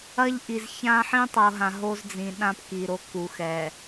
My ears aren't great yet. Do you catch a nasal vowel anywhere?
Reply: yes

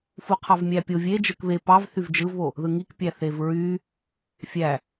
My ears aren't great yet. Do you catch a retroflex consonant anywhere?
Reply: no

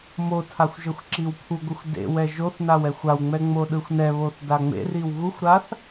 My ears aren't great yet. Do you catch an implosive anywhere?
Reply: yes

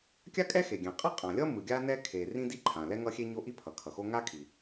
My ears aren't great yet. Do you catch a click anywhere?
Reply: yes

